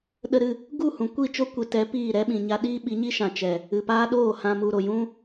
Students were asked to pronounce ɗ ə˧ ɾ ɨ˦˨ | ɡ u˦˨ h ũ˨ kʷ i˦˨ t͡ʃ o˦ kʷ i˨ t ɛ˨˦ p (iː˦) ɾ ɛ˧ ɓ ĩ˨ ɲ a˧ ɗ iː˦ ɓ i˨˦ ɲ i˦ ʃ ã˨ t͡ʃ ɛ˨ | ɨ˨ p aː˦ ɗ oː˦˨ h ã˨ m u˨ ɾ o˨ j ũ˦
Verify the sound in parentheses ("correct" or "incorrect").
incorrect